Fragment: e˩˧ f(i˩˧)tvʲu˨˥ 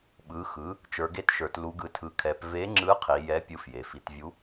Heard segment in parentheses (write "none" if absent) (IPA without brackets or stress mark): i˩˧